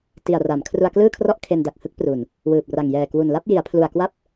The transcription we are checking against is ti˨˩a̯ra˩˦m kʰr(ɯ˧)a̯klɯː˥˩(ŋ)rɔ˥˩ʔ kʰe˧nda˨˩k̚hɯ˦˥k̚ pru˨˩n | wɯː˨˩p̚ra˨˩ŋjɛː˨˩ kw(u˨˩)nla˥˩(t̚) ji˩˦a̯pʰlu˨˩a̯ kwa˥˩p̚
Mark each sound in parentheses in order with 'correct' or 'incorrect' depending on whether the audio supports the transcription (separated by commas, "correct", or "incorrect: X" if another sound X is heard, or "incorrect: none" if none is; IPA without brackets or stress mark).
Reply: incorrect: u˧, incorrect: kʰ, correct, incorrect: p̚